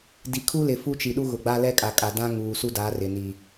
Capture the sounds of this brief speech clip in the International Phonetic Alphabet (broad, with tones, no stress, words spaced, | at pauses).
di˨kʰu˦lɪ˨ fu˦t͡ʃi˨ ɗu˦ɣʊ˨ɡ͡ba˦ lɛ˦kʼa˨kʼa˨dã˦ ŋuː˨su˦ da˨˦rɪ˨ ni˨